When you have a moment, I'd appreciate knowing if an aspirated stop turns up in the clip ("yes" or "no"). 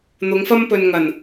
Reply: no